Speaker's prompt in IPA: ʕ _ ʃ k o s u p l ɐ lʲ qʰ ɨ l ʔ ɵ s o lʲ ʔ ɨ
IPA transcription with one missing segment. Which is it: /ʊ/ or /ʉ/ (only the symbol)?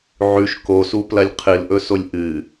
ʉ